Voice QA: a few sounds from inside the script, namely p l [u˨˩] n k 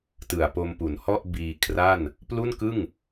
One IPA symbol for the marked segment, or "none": u˥˩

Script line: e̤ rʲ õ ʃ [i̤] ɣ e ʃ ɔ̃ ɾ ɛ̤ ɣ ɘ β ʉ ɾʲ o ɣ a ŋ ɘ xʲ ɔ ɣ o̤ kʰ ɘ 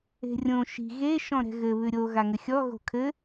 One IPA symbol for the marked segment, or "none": i̤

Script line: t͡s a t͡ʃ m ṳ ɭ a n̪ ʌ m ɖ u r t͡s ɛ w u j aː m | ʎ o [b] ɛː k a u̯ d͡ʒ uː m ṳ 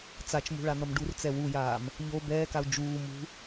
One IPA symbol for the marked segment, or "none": b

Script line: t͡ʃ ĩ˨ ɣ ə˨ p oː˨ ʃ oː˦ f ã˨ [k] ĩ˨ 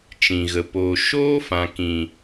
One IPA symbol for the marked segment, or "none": k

